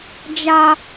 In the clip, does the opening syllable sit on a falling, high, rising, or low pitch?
high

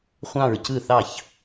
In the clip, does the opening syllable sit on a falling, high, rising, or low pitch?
falling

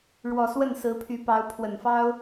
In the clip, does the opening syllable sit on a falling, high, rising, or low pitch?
low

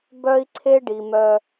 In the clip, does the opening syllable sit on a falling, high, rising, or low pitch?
high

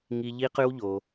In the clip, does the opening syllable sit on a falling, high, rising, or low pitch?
high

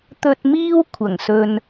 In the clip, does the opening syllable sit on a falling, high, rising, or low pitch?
low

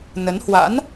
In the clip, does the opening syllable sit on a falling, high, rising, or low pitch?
rising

